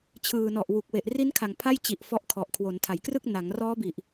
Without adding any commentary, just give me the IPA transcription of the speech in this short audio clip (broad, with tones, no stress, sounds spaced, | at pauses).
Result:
t͡ɕʰ ɯː˨˩ n ɔ˨˩ ʔ w u˨˩ k̚ w e˨˩ ʔ r i˦˥ n kʰ a˨˩ ŋ pʰ a˥˩ j t͡ɕ i˨˩ ʔ f ɔ˦˥ ʔ kʰ ɔ˨˩ ʔ kʰ w o˩˦ n tʰ a˩˦ j k r ɯ˥˩ k̚ n a˩˦ ŋ r ɔː˦˥ b i˨˩ ʔ